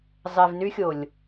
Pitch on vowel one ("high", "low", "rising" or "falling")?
low